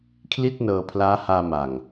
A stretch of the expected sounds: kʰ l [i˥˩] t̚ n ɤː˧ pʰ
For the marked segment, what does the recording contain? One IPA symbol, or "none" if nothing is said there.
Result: i˥˩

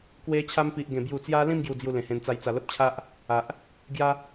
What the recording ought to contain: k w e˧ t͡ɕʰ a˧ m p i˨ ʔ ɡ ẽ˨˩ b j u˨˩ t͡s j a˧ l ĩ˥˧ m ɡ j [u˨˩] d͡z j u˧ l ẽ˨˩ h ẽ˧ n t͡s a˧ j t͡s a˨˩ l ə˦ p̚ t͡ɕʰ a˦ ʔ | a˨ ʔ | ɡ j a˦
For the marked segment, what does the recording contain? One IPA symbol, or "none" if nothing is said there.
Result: u˨˩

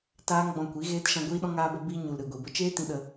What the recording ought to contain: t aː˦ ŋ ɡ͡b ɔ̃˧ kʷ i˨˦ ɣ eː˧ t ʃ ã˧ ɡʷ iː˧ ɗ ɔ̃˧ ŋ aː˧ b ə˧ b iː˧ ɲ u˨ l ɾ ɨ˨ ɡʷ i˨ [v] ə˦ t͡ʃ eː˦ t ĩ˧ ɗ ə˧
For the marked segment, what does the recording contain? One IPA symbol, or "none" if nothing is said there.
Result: b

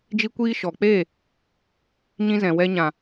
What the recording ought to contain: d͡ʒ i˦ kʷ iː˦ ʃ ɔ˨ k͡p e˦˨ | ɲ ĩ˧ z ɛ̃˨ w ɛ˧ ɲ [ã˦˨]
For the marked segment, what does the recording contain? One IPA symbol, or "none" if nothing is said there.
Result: ã˨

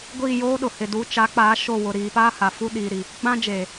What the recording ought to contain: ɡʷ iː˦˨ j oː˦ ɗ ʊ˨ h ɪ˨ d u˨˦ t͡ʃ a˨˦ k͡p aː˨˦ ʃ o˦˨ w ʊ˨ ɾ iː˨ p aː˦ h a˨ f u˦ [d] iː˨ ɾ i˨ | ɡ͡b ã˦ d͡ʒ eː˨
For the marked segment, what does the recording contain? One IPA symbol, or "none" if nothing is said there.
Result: ɗ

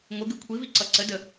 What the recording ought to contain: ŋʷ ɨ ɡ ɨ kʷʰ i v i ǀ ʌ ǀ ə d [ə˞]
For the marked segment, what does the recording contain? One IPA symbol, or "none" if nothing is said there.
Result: ə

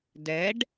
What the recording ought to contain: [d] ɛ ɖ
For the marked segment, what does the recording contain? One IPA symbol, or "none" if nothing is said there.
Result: d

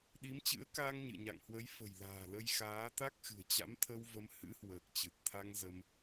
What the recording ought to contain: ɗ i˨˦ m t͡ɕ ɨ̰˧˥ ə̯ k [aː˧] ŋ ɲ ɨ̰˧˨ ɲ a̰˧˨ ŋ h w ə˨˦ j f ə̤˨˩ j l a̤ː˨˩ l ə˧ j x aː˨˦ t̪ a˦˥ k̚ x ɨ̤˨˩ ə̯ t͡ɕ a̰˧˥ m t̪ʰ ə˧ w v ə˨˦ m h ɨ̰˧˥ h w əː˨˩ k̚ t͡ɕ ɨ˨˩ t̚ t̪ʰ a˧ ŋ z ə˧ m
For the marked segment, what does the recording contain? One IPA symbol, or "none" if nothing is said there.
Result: aː˧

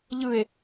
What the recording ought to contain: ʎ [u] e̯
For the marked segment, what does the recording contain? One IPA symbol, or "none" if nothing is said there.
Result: ɯ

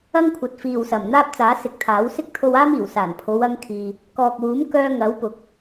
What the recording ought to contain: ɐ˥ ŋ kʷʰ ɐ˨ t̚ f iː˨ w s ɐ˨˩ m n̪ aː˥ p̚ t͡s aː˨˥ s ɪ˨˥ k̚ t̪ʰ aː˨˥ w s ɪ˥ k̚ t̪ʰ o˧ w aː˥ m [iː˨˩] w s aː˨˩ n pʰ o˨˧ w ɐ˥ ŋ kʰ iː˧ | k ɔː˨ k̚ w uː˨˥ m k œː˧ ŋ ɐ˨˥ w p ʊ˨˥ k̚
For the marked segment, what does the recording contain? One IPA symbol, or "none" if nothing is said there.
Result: iː˨˩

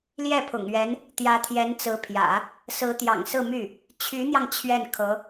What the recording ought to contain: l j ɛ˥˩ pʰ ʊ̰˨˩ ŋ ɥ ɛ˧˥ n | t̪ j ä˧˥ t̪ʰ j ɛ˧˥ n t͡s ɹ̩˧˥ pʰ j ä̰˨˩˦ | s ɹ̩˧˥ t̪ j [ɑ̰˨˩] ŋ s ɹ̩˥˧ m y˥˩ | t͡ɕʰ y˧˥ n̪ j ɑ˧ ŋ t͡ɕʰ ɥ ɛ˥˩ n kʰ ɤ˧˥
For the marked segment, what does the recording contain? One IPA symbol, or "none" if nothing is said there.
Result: ɑ̰˨˩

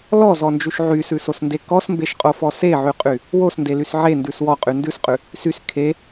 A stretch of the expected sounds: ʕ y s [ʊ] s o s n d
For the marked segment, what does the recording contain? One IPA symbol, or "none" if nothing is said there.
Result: ʉ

